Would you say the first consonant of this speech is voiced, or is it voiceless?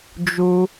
voiced